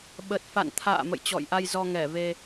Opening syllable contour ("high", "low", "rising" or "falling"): low